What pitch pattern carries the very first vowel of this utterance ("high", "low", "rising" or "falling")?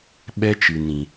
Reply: high